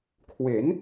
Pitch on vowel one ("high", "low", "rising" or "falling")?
rising